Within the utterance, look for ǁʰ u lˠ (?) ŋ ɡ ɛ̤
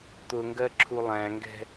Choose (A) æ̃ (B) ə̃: A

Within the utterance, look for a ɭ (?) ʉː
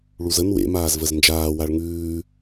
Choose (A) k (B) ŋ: B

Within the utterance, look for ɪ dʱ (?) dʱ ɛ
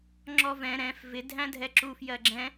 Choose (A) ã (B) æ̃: B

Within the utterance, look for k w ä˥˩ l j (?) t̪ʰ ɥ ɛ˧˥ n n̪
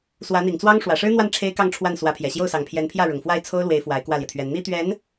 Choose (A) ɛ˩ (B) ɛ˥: A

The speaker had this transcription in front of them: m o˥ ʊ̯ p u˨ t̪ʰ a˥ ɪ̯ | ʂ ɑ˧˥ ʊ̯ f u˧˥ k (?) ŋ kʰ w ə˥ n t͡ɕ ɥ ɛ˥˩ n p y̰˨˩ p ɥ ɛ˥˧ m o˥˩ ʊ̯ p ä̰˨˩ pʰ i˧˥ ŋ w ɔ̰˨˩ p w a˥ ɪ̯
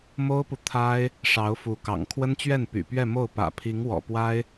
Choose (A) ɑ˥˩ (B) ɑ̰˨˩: B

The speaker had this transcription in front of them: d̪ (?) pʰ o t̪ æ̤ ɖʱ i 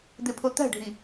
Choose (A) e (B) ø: A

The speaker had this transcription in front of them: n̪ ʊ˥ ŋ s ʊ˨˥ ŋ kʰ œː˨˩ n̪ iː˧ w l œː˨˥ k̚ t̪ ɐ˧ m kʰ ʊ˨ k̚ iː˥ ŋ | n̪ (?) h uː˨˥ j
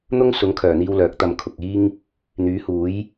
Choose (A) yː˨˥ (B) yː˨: A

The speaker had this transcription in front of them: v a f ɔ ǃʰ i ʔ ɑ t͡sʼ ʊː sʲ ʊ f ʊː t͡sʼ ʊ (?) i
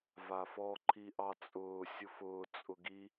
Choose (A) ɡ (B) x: A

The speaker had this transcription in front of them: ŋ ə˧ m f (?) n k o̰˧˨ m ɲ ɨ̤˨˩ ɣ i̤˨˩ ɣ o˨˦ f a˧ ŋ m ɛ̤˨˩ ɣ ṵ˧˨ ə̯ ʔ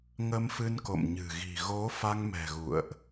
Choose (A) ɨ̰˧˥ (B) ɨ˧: B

